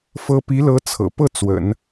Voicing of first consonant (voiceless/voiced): voiceless